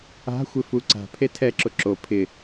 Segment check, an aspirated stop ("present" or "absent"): present